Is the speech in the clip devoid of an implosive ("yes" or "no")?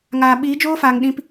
no